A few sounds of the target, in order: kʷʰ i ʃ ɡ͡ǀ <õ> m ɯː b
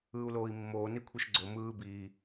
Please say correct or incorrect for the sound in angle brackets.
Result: incorrect